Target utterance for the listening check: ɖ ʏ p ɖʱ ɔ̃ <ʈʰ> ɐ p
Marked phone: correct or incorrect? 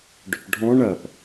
incorrect: ɳ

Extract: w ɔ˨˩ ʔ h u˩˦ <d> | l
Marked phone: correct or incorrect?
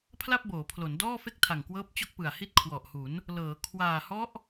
incorrect: n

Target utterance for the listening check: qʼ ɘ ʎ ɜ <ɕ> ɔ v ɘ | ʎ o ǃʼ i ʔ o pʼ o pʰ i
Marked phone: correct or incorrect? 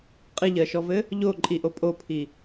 incorrect: ʃ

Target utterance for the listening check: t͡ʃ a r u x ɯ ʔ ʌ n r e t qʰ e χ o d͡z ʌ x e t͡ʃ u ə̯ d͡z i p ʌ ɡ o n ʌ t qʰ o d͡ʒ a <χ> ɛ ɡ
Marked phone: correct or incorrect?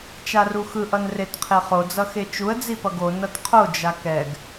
incorrect: k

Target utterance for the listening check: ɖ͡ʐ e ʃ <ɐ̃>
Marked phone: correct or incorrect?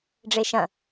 correct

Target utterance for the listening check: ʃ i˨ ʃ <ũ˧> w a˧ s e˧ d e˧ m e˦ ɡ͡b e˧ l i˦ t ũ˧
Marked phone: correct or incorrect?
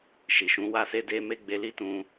incorrect: ũ˨˦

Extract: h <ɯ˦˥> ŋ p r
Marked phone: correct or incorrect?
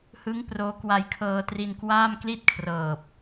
correct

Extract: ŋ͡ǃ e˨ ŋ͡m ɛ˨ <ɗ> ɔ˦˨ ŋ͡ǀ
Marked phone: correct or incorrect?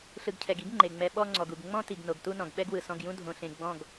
incorrect: ɓ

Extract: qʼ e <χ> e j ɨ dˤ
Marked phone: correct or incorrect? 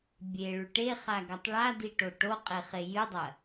correct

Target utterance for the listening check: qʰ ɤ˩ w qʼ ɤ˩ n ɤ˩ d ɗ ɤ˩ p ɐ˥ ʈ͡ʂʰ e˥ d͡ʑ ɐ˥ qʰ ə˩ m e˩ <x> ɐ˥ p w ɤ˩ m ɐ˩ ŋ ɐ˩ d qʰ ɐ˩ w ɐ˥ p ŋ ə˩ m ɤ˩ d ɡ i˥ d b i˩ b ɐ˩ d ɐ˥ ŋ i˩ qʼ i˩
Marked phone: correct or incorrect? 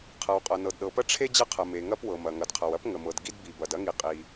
incorrect: ŋ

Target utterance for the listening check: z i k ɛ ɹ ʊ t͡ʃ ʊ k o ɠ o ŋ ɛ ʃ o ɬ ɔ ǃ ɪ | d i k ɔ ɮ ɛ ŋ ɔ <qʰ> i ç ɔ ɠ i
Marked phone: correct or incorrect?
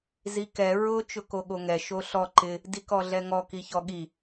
incorrect: k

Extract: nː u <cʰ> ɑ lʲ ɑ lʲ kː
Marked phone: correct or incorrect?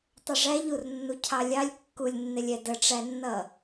correct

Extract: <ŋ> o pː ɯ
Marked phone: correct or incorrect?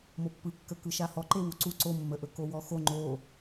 incorrect: m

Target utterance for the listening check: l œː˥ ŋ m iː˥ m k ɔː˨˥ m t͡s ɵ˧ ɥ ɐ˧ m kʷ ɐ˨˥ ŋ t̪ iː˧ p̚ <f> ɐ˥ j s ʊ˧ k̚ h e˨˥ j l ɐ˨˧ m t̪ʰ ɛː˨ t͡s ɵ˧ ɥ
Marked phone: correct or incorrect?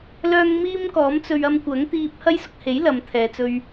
incorrect: h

